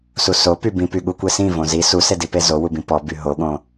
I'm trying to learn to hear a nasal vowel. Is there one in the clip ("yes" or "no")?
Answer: yes